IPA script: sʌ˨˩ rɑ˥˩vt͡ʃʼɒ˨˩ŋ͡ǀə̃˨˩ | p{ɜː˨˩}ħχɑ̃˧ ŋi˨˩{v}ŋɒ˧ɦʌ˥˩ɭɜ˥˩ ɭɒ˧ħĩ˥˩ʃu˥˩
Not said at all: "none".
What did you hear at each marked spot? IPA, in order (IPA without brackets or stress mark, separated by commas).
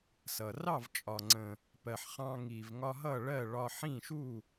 ɜ˨˩, v